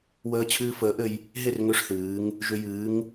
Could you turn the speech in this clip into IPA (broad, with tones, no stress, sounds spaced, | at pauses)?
w əː˧ t͡ɕʰ ɨː˧ f əː˨˥ ʔ ɘ˧ j | ɦ e˥˨ r ŋ ʏ˥˨ ʂ θ ɨː˨˥ ŋ | ʒ ʏ˧ j ɨː˨˥ ŋ